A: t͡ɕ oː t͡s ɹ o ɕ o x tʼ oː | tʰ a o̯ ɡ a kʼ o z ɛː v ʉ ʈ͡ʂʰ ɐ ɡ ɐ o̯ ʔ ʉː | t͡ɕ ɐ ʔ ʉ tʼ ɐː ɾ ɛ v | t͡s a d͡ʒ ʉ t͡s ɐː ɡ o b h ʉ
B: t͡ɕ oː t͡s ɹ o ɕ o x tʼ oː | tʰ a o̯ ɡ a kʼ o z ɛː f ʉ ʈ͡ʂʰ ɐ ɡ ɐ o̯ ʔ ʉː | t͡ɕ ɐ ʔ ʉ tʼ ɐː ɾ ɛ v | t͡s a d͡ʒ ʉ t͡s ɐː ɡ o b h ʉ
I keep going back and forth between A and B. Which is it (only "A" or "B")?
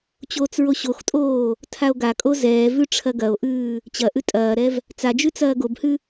A